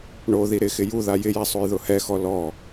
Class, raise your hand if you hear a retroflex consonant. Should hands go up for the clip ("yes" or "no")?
yes